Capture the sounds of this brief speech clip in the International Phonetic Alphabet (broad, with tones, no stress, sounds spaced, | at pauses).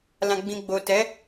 l ã˨ ɡ͡b ĩ˨ ɡ͡b o˨ t ɛ˨˦